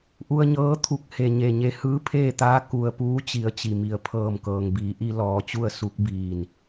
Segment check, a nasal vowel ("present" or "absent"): absent